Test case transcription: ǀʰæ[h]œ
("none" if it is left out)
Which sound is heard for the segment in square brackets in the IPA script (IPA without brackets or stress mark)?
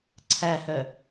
h